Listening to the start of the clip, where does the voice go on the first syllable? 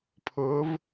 rising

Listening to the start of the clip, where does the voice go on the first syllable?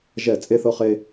falling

